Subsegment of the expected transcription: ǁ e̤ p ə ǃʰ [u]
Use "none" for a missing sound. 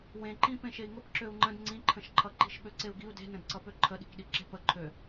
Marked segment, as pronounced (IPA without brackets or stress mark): ø